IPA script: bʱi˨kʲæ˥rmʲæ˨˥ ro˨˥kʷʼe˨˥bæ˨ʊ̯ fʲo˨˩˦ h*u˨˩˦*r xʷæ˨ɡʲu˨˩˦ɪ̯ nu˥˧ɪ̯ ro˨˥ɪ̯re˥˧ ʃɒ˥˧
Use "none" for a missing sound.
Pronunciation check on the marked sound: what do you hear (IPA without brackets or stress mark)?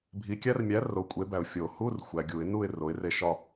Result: u˧˥˧